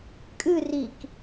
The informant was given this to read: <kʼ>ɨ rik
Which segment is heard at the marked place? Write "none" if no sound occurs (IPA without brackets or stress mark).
kʼ